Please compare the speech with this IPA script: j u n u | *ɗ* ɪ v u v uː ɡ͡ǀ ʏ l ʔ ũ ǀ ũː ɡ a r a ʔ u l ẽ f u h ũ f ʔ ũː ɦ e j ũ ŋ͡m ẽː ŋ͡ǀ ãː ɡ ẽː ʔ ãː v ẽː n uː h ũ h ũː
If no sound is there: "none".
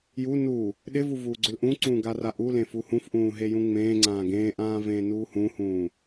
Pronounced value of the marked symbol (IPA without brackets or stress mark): ɗ